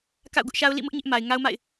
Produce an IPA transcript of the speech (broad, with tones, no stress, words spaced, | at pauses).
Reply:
ka̰˦˨ʊ̯ɡʊ˦ʔʃa˦ʊ̯ lḭ˦˨mʊ˦ʔ ɲɪ˦ʔma˨ɪ̯ ŋa˦ʊ̯ma̰˦˨ɪ̯